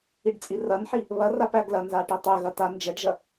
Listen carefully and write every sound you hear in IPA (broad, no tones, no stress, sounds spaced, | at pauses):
i ɖ t͡sʼ i r ɐ n ħ i | β ɐ r a p æ ɡ l ɐ n z a ʈ i tˤ ɛ ɣ ɐ t a n d͡ʒ ɛ ɖ ʒ ɐ